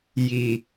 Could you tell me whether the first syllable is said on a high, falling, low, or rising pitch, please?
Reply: low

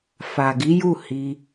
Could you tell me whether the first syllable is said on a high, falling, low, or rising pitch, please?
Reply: low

